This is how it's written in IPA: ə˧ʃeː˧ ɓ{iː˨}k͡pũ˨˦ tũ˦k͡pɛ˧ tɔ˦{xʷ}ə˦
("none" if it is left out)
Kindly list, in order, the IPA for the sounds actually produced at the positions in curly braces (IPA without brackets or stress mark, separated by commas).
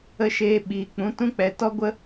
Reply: iː˨, ɡʷ